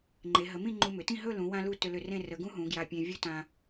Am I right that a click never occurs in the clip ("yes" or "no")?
no